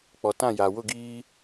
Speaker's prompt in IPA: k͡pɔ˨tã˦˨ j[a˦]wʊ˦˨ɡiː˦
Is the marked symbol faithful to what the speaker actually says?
no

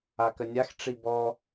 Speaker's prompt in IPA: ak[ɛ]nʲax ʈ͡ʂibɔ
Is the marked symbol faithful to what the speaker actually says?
no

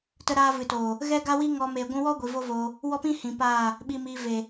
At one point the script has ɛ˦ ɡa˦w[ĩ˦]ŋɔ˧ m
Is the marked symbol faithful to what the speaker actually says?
no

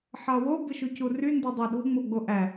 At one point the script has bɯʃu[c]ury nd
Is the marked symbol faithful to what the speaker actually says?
yes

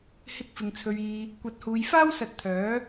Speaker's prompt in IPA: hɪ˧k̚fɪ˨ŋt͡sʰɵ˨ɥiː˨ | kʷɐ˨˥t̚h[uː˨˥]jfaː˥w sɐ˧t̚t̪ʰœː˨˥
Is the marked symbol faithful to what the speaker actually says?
no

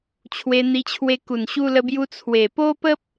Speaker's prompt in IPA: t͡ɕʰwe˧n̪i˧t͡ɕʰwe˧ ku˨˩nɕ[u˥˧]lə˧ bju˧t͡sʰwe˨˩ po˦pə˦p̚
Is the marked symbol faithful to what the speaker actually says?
no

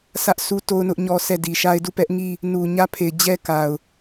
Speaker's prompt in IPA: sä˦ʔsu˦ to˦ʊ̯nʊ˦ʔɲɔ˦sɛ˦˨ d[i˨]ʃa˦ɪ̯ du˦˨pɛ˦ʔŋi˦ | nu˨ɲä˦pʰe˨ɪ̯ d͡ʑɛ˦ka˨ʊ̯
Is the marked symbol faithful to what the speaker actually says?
yes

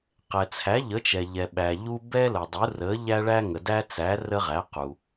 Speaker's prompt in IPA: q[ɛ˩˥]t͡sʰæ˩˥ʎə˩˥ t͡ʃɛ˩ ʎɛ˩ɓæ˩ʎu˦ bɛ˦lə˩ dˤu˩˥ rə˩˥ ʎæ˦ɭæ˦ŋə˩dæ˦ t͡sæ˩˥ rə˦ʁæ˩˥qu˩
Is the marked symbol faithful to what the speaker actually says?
no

